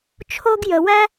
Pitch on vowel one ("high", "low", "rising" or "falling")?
high